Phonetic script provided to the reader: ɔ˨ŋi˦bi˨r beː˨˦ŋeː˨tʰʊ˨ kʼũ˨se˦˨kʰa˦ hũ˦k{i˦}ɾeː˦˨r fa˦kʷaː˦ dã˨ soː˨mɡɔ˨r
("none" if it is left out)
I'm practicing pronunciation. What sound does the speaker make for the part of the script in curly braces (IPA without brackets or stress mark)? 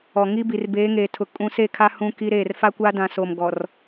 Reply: i˦